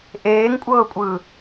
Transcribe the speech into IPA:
ʔ eː ŋ kʷʼ ɤː kʷʼ ɯː

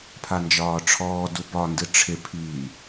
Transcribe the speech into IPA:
pʰ a n d͡ʒ ɒː ʈ͡ʂʰ ɔː d u b ɒ n d ɨ ʈ͡ʂʰ ɪ pʰ iː

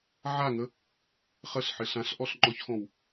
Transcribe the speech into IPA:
ʕ a ŋ ə | χ ə ɬ ħ ɪ ɬ ã ɬ ʔ ɔ ɬ ŋ͡ǃ ɔ ç x ɔ̃ w

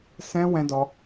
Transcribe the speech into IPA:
s ɛ̃˦ w ɛ̃˦ d ɔ˦

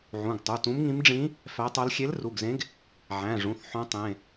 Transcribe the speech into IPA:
ʕ ũ˩˧˩ ɡ tˤ u˩˧˩ t ũ˧˥ m ŋ ĩ˧˥ m ɖ͡ʐ ĩ˧˥ | f æ˧˥ tˤ o˧˥ l xʲ e˧˥ l r u˩˧˩ ɡ z ẽ˧˥ ɡ | ʕ æ̃˩˧˩ ʐ ũ˩˧˩ θ ħ õ˧˥ tˤ ẽ˩˧˩

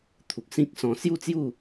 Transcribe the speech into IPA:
t̪ʰ u˨ k̚ s ĩ˦ k̚ s ɔ̃˧ s j u˥˧ t͡s j u˥˧

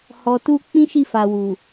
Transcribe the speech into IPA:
h ɔ˨ t u˧ k͡p ĩ˦ ʃ i˦˨ f a˨ w u˨

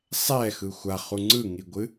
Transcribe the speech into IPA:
sˤ ɛ x ɯ xʷ a χ u ŋ͡ǀ ɯ ŋ i ɡʷ ɨ

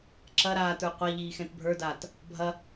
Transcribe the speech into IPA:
ǁ ɐ ɾ aː t ə˞ qʷ a ʎ iː x ɛ̃ t bʱ ə˞ d aː t | bʱ ɐ

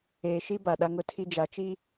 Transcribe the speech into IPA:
eː˨ ʃ i˦ b a˨ ɗ a˦ ŋ ʊ˦ tʰ i˦ d͡ʒ a˨ t͡ʃ i˦

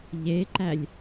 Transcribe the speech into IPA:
ʎ e ǃ æ lʲ

